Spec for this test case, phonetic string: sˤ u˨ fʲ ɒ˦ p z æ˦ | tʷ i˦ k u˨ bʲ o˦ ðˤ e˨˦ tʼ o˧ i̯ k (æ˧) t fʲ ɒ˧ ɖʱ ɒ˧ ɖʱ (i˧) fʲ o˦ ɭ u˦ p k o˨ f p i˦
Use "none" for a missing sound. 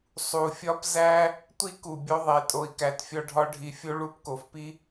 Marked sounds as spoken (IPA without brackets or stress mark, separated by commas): æ˧, i˨